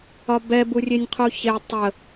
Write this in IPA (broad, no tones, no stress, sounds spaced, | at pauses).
ɒ b ɛ b u rʲ e nʲ qʰ u ç e tˤ ə